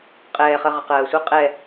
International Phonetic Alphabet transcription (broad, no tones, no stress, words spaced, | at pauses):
qʼɛːχɜ ʁəqɜːsʷɘ qʼɛ